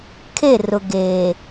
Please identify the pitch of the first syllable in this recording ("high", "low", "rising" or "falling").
falling